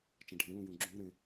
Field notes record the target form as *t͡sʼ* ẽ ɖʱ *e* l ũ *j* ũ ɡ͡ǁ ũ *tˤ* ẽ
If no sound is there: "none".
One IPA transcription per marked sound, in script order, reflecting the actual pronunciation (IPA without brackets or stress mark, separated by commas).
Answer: t͡ʃ, ẽ, j, ɾ